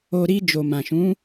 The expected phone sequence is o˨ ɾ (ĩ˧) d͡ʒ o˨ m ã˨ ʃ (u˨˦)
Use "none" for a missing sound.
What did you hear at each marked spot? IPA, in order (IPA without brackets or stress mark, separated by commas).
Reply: i˧, ũ˨˦